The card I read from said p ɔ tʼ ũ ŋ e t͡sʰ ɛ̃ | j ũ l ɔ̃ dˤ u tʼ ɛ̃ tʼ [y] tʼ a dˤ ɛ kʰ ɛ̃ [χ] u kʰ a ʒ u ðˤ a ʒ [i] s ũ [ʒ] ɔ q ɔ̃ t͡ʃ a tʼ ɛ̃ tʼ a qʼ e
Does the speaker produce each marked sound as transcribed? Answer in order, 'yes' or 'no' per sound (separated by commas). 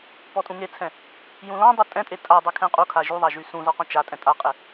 no, no, no, no